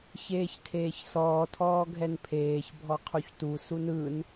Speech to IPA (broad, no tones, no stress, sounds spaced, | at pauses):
ç eː ç tʰ eː ç s ɔː tʰ ɔː ɡʱ ɛ n pʰ eː ç bʱ ɔ qʰ u ç t u s u n ɯ n